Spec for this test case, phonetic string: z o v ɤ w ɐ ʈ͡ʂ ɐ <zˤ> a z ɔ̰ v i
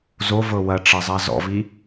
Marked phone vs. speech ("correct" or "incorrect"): correct